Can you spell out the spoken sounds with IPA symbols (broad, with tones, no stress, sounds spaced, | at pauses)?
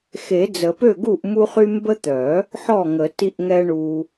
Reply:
x e˨˩˦ d͡z ə˨˩˦ p ø˥˩ ɡ u˥˩ ʔ m u˦ χ y˦ m b ə˦ t̪ œ˨˩˦ | ħ ɔ˥˩ ŋ ə˨˩˦ t i˦ ʔ ŋ ɛ˦ ɳ u˦